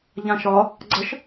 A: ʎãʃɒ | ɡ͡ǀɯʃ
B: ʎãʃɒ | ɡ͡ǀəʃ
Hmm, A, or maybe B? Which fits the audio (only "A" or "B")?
B